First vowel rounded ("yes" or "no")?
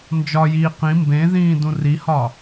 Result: yes